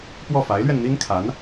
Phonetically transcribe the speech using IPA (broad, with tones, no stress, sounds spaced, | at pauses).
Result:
p w ɔ˥˩ f a˧˥ ɪ̯ l ɥ ɛ˧ n n̪ i˥ n kʰ a˧˥ n